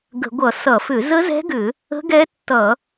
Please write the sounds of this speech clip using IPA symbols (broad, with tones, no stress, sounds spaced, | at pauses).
ɡ ə̤˧˩˧ ɡʷ ʌ˧˩˧ s ʌ˧˩˧ f ʏ˧˩˧ z ə˦˥ z ɛ̤˦˥ ɡ ʏ˧˩˧ | ə̤˦˥ ɡ ɛ˦˥ tː ʌ˧˩˧